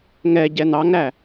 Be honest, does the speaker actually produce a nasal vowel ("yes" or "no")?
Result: no